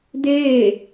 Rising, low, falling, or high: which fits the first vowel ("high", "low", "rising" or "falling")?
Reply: falling